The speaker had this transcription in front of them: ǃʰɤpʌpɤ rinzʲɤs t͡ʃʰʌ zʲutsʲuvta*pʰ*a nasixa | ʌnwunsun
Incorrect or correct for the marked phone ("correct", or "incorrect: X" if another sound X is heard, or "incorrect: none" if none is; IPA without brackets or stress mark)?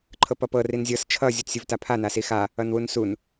correct